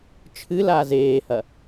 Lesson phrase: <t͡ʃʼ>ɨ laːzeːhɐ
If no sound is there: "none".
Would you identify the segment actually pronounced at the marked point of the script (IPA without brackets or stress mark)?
t͡ʃʰ